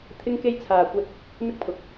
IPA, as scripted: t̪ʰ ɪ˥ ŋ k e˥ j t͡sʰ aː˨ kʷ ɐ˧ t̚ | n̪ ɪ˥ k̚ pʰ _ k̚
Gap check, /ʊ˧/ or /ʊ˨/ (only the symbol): ʊ˨